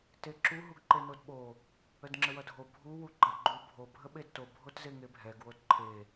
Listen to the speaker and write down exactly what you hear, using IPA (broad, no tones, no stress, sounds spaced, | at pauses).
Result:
t e ǁ u ɦ u ɡ ǃ e n o d ɓ o | ə d ŋ͡ǁ ə w ʌ dʱ o bʱ u w u ɡ͡ǃ ʌ ɡ͡ǃ u bʱ o bʱ ə ɓ e d t o bʱ o t z e ŋ e bʱ ɛ ɡ w o d ǃʰ e